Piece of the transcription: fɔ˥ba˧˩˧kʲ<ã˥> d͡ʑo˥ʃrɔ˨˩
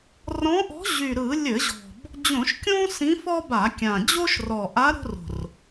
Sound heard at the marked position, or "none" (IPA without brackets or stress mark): ã˨˩